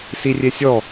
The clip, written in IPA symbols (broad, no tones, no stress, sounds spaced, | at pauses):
s i rʲ e sʲ ɔ